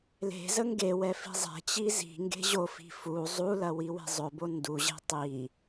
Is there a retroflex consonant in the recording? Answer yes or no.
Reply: no